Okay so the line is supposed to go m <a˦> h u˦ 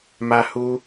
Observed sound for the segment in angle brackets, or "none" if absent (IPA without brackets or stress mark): a˦